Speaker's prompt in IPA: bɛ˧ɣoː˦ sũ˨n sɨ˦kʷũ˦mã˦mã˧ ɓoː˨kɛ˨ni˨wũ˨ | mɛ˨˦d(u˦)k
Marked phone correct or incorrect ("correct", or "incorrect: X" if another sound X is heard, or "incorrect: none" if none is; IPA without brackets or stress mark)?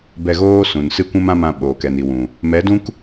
incorrect: ũ˦